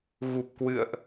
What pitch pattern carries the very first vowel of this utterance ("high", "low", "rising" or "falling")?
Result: low